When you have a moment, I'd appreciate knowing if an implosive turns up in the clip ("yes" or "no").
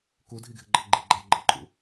no